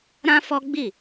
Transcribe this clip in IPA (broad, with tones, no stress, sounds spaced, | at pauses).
ɾ ã˦ f ɔ˦ ɡ͡b i˦˨